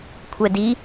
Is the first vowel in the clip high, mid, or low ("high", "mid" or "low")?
mid